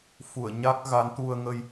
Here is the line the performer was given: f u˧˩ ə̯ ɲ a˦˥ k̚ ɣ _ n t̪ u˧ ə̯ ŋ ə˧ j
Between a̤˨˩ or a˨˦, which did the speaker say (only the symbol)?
a˨˦